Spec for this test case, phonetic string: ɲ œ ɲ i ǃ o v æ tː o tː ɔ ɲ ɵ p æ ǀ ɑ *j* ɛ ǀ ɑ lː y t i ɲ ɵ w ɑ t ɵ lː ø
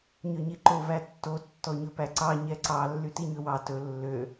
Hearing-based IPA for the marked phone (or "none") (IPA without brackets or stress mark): ɲ